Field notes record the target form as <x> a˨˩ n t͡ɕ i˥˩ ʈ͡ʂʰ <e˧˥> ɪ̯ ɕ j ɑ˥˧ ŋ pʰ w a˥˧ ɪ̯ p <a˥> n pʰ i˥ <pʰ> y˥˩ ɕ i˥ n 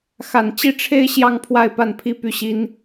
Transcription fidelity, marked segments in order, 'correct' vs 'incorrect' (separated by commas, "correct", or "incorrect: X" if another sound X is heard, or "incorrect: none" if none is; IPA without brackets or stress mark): correct, incorrect: e˥, incorrect: a˥˩, incorrect: p